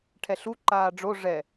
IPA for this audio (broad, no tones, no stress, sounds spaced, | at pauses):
ʈʰ ɛ ɬ u ǃ aː ɖ͡ʐ o ʐ ɛ